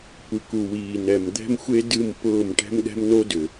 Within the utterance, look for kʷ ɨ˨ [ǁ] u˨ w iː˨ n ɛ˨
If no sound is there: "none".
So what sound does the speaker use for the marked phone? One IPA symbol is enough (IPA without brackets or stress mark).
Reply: k